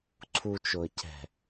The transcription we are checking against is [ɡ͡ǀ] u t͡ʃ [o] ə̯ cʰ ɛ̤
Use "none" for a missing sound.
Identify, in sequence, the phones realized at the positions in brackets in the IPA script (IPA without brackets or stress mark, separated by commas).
ǀʰ, o